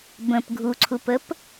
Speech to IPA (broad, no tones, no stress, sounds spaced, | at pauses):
b ə̃ p ɡʱ u ǀʰ u p ə p